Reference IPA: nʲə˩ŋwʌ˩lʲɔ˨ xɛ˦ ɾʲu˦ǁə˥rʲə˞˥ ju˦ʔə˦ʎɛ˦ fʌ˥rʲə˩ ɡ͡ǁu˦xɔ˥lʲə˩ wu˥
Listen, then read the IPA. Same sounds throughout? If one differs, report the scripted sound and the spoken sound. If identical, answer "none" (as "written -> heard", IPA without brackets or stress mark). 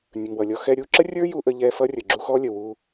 none